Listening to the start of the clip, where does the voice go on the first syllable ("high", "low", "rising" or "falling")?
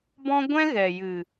high